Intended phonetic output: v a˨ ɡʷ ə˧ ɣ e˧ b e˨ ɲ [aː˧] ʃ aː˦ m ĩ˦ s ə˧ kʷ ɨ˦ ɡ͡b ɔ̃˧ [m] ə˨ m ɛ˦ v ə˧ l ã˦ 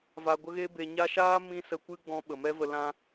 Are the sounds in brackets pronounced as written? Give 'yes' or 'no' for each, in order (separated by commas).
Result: no, no